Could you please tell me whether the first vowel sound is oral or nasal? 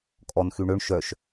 oral